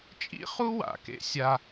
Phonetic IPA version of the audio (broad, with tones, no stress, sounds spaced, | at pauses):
t͡ʃʼ ḭ˥ χ u˥ w a̰˩ k ḛ˧ sʲ a˧